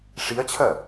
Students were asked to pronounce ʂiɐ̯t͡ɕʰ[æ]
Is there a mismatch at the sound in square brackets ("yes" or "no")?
yes